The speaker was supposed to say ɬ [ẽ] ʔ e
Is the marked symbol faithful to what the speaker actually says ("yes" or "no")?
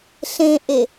yes